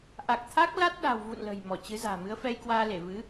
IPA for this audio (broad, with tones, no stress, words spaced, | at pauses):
ʔa˨˩k̚ t̪ʰa˦˥k̚ la˦˥t̚ɗa̤˨˩w vṵ˧˨n lə̤˨˩j mɔ˧˩t͡ɕɨ˨˦za̤ː˨˩ mɨ˨˦ə̯fɛ˧jkwaː˧le˧˩ vɨ˨˦